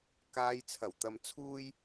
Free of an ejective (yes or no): yes